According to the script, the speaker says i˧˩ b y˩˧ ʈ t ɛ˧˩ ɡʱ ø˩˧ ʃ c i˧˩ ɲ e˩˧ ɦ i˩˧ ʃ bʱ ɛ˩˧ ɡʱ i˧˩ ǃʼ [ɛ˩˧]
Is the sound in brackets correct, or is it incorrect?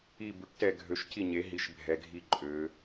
incorrect